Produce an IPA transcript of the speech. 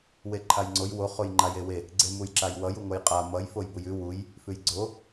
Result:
w e ǃʰ a j ŋ͡ǀ o j w o χ o j ŋ͡ǃ a j e w e | ɡ͡ǀ e m u j ǁ a j w ʌ j u ŋ o j qʼ a m ʌ j f o j b u j ʉ w u j | f ʉ j ɡ͡ǀ o

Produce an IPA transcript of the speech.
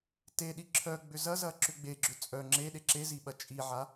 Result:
t e ɗ i ǁʰ œ ɡ͡b ʏ z ɐ z ɐ ǁ ʏ ɡ͡b e ɡ͡ǁ ʏ t͡sʼ œ ŋ͡ǁ e ɗ e ǁ e z i ɓ ɐ t͡ʃʼ i ʕ a

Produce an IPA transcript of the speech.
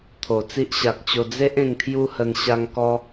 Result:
t̪ʰ o˨˩ t͡s i˦ ʔ ɕ a˨ k̚ t͡ɕ o˧ d͡z e˦ ʔ ẽ˧ ŋ t̪ʰ j u˦ h ə˧ n ɕ a˧ ŋ k ɔ˧

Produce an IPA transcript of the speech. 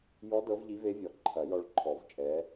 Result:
j ɔ˧˥ d ɤ˧˥ v ʎ i˧˥ v e˧˥ vʲ ɔ˨˩˦ ǃʰ ɐ˨˩˦ j ɔ˧ ɭ ǃʰ ɔ˨˩˦ v t͡ʃʼ ɛ˧˥

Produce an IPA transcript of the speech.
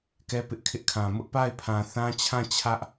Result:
k ɛ˦ p ɪ˦ ʔ kʰ ɪ˦ ʔ kʰ ã˨ m ʊ˦ ʔ p a˦˨ ɪ̯ pʰ ã˨ θ ã˦ t͡ɕʰ ã˦˨ t͡ɕʰ ä˦ ʔ

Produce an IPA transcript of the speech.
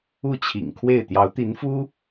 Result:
u˥˩ t͡ɕʰ ḭ˨˩ ŋ kʰ w e˥˩ ɪ̯ t̪ j ɑ˧˥ ʊ̯ t̪ i˧˥ n f u˥

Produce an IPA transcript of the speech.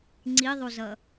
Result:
ŋ͡ǀ i ðˤ u z ʌ

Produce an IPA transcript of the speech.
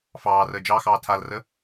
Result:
f ɑː r əː d͡ʒ ɑ x ɑː tʰ a l r ə

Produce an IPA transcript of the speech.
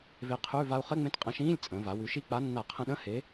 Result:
v e˧ qʰ ʉ˧˥˧ v a˧ u̯ χ ɘ˧˥˧ ŋ͡m ẽ˧ t qʼ ə̃˨˥ ʃ ĩː˧˥˧ lʲ t͡sʼ ə̃ː˩˧ v a˩˧ w ʉ˩˧ ʃ i˧ k͡p a˨˥ nː a˧˩˧ qʰ ə̃˧ ɗ ə̃˧˥˧ h e˨˥

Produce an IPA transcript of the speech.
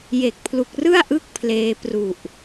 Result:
j e˨˩ k̚ pʰ l u˨˩ k̚ r ɯ˥˩ a̯ ʔ ɯ˥˩ k̚ pʰ l eː˧ p r u˨˩ ʔ

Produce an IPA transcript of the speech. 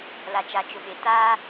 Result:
l a˨ t͡ʃ a˨ t͡ʃ ʊ˨ ɓ e˨ t aː˦

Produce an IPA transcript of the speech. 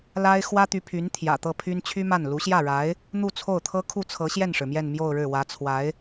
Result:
l a˥ ɪ̯ x w ä˥ t̪ y˧˥ pʰ y˧˥ n t̪ʰ j ä̰˨˩ t̪ ɤ˥˩ pʰ y˥ n t͡ɕʰ y˥ m a˥˩ n l u˧˥ ɕ j ä˥˩ ɻ a˧˥ ɪ̯ | n̪ u˥˧ t͡sʰ o˥˩ ʊ̯ t̪ʰ ɤ˥ kʰ u˥˩ t͡sʰ ɤ˧˥ ɕ j ɛ˥˩ n ʂ ɻ̩˩ m j ɛ˥˧ n m j o˥˧ ʊ̯ ɻ ɻ̩˥˩ w ä˧˥ t͡sʰ w a˧˥ ɪ̯

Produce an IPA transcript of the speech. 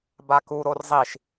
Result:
b a k u ɾ o r zˤ i ʃ

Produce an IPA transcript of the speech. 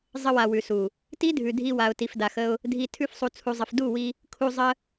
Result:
zˤ ə˧ w a˨ w ʉ˨ s u˨ | t i˦ dʱ ʉ˨ dʱ i˧ w a˨ ʊ̯ t i˨ f d a˨ x ə˧ ʊ̯ | dʱ i˧ tʰ ʉ˦ f sˤ u˧ t͡sʰ u˧ zˤ ə˧ f d u˦˨ w i˧ | kʰ u˧ zˤ ə˦

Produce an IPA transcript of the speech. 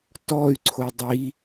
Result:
t ɔ y̯ ǀʰ o dˤ i

